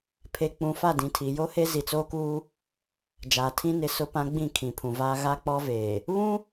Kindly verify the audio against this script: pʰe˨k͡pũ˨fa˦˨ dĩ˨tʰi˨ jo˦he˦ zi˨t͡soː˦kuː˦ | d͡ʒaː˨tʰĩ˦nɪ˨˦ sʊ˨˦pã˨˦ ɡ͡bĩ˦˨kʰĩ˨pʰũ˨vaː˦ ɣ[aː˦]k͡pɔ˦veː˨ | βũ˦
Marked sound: incorrect: a˦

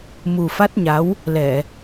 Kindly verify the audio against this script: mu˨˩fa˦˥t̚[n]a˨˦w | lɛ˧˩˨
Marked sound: incorrect: ɲ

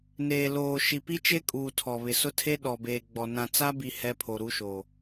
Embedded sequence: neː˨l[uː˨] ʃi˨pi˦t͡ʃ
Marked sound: incorrect: oː˨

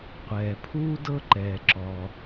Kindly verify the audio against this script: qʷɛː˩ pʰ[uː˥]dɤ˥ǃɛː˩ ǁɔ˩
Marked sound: correct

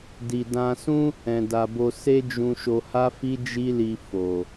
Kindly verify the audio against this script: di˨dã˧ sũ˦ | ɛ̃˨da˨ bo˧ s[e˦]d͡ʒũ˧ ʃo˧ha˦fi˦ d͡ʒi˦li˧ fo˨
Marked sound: correct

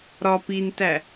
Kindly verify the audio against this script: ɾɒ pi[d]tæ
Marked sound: incorrect: n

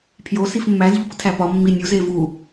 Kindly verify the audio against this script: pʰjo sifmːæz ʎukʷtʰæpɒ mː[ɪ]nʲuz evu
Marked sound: incorrect: i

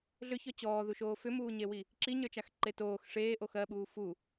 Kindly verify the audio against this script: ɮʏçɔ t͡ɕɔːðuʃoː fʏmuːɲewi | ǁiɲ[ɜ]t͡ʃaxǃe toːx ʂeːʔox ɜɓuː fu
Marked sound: incorrect: ə˞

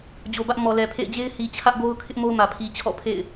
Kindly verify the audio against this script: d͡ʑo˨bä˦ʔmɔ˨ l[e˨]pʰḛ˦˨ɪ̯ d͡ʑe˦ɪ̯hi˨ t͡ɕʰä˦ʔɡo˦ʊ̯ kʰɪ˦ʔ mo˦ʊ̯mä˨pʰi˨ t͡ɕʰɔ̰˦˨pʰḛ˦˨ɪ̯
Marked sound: incorrect: ɛ˨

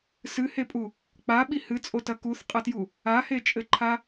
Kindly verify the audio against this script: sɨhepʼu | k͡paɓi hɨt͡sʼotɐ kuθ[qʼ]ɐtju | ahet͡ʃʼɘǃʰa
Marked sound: correct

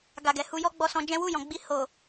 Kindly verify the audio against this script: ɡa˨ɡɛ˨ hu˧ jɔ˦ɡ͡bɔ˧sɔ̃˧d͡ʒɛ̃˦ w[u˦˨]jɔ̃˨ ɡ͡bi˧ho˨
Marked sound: correct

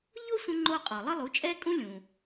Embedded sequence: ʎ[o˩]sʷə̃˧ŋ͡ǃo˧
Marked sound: incorrect: o˥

